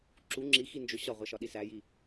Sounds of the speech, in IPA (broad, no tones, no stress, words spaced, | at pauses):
ǁu ŋ͡ǁixind͡ʒo ɕɒʁʷæʃɒɗi sæji